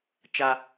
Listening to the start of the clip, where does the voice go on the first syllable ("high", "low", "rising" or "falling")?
high